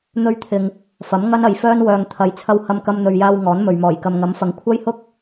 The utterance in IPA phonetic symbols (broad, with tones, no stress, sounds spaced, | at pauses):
n̪ ɵ˧ ɥ t̪ʰ ɪ˨ ŋ | f ɐ˨˥ m ŋ ɐ˥ n ɐ˨ j f œː˥ n w œː˨ ŋ t̪ʰ ɐ˨ j t͡sʰ ɐ˧ w h ɐ˧ m k ɐ˧ m n̪ ɵ˨ ɥ j aː˧ w ŋ ɔː˨˥ n m ɵ˨ ɥ m ɔː˨˩ j k ɐ˨ m ŋ ɐ˨˥ m f ɐ˨ ŋ kʷʰ ɐ˥ j h ʊ˥ k̚